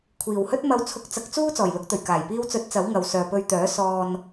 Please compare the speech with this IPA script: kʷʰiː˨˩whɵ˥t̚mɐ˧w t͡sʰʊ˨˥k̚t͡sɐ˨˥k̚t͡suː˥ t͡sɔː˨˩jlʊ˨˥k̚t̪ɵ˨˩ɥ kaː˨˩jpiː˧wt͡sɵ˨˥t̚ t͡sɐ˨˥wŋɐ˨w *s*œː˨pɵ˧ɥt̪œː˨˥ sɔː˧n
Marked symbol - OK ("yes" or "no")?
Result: yes